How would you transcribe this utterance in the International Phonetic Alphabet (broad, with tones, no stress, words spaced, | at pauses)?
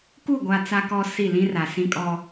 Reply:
ku˦˨ ɡʷa˦t͡sa˦kɔ˦si˦˨ lĩ˦ra˨sĩ˦kʼɔ˦